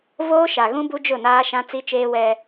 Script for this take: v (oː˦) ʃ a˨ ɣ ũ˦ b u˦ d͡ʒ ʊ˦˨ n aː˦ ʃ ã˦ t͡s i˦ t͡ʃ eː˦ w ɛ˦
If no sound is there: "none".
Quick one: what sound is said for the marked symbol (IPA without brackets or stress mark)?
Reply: oː˦